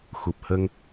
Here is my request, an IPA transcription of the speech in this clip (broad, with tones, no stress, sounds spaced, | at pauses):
x u˨˩ p̚ h ə˧ ŋ